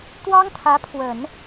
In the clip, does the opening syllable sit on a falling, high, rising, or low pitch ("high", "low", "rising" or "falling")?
high